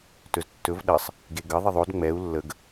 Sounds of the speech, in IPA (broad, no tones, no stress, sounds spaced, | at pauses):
t ɵ z tː ɵ v ɗ ə sˤ | ɡ e ɡ ə ðˤ ɪ ðˤ o d ŋ͡m ɛ u̯ lː ə ɡ